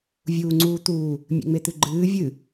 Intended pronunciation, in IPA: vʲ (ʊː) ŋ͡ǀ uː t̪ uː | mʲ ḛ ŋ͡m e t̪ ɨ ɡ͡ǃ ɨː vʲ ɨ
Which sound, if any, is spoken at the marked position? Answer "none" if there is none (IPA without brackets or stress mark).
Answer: uː